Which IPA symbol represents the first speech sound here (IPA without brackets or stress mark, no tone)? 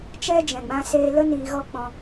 t͡ʃ